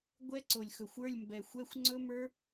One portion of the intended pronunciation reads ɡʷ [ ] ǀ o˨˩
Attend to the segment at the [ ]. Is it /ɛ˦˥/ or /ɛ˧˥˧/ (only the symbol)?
ɛ˦˥